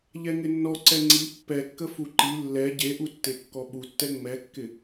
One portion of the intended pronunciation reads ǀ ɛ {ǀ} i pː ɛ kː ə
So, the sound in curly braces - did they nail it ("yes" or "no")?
no